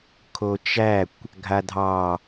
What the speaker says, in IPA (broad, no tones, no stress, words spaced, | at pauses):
kʰot͡ʃækʷ | ɡʱadʱɑ